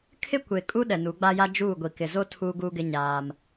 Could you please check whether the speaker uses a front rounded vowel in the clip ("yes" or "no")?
no